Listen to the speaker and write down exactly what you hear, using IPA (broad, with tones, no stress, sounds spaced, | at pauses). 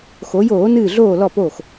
x o˩˧ j oː˧˩˧ n ɨː˧˩ ɮ oː˧˩ l ɔ˧˩ p o˧˩ x